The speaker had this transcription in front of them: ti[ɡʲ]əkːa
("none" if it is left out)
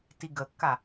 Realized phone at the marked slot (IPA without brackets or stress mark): ɡ